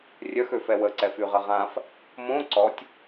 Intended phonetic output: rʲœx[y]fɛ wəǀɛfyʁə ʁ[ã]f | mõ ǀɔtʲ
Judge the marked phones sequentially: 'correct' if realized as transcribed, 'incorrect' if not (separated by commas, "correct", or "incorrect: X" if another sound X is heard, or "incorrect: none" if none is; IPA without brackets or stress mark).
incorrect: ø, correct